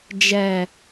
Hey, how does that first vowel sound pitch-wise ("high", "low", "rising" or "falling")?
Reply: low